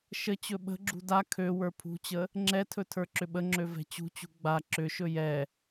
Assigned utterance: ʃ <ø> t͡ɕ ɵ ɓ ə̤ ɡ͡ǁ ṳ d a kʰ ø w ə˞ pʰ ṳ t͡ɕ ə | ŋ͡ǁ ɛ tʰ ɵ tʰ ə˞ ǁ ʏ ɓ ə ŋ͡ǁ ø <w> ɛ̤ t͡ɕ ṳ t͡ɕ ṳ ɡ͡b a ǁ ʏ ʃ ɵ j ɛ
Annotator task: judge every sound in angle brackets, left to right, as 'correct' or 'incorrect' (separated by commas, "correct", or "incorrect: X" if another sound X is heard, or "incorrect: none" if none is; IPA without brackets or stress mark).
incorrect: ə, incorrect: v